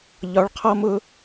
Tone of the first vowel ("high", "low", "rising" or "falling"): rising